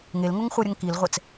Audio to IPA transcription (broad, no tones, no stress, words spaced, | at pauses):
ŋelŋoŋ χʷʌɾʲʌŋ kilʁʷɛt͡s